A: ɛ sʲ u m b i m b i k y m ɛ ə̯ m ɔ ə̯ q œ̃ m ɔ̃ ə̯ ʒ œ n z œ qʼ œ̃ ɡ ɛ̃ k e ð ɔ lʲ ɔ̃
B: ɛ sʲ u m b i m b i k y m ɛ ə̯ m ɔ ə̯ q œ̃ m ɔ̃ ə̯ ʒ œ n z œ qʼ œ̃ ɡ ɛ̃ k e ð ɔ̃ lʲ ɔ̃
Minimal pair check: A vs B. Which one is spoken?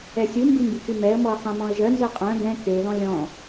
B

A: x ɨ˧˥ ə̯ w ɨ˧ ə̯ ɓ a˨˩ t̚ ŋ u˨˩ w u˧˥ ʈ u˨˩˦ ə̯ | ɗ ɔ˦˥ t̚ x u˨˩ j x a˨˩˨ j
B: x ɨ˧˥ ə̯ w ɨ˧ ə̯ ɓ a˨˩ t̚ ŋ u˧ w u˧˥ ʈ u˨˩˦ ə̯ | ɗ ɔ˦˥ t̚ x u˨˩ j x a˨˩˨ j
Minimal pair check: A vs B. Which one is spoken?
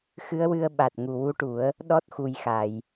A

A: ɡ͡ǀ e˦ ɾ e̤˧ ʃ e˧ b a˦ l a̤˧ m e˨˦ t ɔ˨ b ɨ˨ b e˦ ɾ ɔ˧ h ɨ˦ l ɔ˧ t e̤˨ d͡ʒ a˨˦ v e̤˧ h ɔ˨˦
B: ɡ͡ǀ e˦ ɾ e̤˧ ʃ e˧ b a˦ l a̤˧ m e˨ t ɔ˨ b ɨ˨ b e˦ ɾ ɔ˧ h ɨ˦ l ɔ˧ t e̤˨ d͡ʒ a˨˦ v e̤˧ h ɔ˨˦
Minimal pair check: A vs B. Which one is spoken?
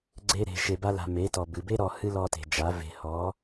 A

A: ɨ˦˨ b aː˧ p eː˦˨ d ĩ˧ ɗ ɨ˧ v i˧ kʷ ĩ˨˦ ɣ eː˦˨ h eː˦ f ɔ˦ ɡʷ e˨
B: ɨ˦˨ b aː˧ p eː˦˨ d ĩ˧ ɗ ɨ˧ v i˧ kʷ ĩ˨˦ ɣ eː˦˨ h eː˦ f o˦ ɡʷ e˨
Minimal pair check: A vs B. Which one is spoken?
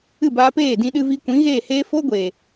B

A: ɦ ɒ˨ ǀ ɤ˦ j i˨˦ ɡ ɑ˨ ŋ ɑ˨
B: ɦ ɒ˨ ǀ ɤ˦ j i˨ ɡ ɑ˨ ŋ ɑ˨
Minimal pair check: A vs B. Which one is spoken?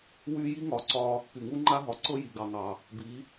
B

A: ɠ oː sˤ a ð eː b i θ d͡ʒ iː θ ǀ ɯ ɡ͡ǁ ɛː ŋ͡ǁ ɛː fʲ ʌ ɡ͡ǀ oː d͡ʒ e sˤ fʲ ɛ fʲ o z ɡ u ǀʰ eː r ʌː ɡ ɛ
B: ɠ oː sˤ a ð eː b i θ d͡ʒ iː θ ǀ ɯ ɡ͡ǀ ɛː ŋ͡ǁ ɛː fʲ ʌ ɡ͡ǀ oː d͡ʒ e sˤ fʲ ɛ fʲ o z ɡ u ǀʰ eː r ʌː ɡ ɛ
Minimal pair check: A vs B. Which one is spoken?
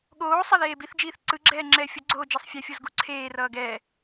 A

